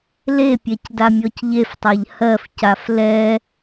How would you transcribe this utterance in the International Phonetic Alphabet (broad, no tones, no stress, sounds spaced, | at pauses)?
l e pʲ ɛ c d a mʲ ɔ c ʎ e f tˤ a ʎ h ɜ f c a f l ɛ